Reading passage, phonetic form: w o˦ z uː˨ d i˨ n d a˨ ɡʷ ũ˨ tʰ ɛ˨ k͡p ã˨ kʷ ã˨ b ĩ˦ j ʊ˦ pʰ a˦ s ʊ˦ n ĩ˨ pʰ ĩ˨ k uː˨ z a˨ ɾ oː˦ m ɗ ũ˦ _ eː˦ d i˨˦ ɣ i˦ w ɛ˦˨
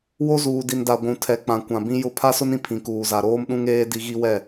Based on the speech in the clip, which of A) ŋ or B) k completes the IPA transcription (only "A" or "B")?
A